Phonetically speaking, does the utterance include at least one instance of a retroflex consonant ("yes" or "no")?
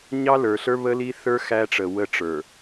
yes